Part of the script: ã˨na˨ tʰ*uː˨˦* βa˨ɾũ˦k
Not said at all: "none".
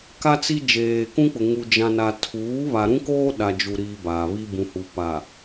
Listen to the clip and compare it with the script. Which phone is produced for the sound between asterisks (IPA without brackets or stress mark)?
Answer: uː˨˦